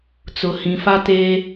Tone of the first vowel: low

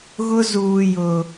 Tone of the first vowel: high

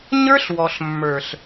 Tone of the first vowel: high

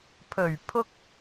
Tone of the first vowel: low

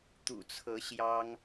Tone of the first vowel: low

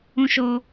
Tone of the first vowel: high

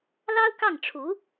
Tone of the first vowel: high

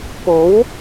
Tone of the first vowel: rising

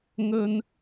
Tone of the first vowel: high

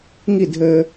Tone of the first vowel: falling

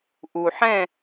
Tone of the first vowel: low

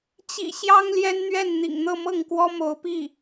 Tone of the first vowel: low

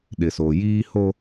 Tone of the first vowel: low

